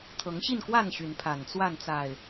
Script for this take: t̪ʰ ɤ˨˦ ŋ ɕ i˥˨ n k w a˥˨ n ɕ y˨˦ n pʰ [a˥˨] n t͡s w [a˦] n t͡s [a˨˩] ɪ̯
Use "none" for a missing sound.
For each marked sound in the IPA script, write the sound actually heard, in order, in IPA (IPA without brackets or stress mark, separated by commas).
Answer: a˨˩, a˥˨, a˨˩